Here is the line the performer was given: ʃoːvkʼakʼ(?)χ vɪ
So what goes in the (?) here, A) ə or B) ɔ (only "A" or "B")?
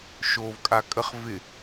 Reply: A